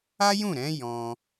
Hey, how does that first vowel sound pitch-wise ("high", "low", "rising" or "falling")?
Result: high